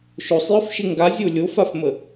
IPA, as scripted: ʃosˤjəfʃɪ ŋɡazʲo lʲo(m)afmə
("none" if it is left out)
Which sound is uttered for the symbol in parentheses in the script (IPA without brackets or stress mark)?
f